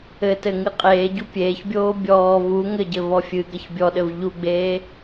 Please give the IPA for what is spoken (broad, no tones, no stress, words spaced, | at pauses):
ɘtɘŋɨ qʼeːɟu pʲeːçbʲoː bʲɔː vu ŋɘɟɘvɔ fʲɨɡɐç bʲɔɗɘv ʎuɡ͡beː